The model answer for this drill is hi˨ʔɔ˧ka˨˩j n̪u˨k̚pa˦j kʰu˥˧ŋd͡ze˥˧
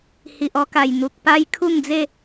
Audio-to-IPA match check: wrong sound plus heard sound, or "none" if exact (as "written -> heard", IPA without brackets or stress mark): none